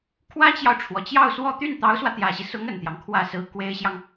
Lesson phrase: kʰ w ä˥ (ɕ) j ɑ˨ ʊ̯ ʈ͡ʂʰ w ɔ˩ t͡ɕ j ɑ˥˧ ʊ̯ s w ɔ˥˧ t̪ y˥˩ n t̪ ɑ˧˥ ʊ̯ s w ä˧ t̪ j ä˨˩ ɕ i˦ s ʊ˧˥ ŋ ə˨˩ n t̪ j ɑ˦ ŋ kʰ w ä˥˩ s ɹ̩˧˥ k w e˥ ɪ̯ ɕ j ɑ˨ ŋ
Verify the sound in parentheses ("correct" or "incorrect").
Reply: incorrect